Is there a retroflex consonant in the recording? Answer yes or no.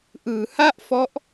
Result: no